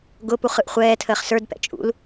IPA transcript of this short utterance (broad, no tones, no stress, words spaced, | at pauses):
ɡʊpuχ ɯʔχʷɛːtʰəːχ sə˞dpɛ̰ t͡ʃʼṵl